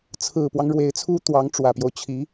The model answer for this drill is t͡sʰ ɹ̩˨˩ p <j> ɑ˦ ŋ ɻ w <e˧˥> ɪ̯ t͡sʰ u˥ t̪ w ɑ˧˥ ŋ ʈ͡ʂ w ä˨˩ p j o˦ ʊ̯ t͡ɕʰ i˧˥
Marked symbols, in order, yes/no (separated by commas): no, yes